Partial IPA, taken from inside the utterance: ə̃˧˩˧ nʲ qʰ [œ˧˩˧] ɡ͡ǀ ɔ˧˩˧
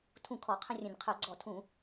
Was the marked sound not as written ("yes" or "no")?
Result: no